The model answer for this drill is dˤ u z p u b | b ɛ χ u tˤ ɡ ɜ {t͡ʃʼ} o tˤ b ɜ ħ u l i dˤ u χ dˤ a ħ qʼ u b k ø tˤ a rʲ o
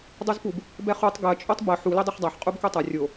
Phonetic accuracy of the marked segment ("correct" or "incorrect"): correct